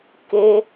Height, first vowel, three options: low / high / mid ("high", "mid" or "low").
mid